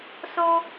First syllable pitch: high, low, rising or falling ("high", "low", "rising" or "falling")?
high